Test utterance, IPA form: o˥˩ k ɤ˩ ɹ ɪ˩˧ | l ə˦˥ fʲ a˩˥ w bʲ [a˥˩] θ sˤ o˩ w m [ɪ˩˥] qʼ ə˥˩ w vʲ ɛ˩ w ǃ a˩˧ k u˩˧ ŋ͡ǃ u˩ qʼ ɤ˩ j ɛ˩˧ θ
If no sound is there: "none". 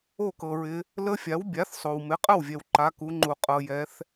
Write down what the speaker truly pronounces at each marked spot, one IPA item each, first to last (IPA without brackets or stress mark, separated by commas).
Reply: a˩˥, ɪ˩˥